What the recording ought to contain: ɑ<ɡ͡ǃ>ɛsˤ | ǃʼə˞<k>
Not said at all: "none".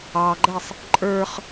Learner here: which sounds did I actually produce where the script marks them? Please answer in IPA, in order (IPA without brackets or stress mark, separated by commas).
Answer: ɡ͡ǃ, χ